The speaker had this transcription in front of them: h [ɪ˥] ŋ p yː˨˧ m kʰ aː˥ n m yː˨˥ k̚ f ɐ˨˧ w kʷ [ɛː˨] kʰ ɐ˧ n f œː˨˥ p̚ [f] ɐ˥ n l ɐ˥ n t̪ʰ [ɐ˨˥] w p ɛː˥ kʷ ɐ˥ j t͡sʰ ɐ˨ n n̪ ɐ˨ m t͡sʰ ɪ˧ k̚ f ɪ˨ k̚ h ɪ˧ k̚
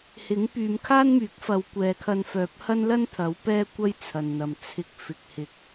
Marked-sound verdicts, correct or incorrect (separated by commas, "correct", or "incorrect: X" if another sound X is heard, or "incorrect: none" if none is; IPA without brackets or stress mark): incorrect: ɪ˨˥, correct, incorrect: h, correct